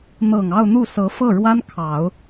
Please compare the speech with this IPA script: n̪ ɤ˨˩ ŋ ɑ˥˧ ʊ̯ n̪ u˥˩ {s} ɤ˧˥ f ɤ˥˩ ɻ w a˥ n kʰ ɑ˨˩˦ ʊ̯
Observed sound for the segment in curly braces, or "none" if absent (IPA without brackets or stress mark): s